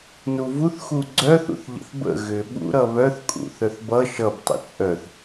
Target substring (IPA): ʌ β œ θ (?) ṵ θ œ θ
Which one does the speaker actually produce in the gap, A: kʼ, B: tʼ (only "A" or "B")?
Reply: A